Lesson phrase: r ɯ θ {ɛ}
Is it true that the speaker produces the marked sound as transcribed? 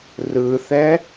yes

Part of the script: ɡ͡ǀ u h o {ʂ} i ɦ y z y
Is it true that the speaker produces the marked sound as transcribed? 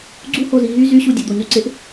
no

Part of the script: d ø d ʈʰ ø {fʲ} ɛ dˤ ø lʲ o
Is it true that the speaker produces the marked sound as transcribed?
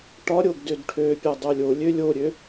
no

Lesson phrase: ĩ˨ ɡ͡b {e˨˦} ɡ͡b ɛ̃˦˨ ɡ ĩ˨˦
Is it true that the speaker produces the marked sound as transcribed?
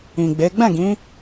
yes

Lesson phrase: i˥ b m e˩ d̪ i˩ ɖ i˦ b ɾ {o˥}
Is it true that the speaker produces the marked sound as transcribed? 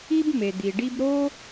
yes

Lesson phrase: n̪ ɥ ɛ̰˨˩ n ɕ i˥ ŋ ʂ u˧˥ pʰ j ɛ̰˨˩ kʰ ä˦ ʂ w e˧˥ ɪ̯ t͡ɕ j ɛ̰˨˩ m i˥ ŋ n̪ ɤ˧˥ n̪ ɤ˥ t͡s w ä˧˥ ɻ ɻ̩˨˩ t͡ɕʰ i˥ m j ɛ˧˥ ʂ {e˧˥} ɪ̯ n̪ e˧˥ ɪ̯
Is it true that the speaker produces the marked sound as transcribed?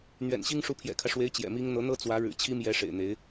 no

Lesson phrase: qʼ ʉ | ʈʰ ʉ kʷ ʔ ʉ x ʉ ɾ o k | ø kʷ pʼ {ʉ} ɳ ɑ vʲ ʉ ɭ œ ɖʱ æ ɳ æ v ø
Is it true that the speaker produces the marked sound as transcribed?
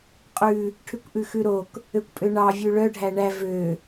no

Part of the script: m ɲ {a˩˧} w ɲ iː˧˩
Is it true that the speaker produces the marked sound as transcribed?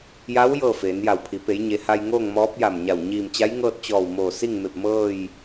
no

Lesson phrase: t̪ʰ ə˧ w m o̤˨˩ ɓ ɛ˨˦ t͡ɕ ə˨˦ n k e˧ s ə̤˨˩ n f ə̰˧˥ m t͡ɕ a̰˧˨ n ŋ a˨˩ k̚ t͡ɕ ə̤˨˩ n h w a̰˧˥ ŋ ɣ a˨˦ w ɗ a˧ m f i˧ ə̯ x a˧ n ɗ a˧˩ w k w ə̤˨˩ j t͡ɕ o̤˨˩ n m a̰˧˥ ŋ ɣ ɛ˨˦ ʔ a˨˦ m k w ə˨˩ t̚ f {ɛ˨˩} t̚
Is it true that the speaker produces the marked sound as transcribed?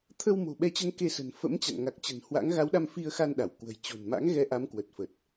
no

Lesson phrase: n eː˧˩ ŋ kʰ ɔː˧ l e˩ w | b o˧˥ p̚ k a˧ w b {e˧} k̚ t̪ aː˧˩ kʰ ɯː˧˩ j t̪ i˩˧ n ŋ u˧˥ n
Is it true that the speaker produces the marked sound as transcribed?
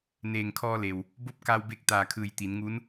yes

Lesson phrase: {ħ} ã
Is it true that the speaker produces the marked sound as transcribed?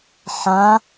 yes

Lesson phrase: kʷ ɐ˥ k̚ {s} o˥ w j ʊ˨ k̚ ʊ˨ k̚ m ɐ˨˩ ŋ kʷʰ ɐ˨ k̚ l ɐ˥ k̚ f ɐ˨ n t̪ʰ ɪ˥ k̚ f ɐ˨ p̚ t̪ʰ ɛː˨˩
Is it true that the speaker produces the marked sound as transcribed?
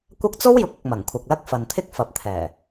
no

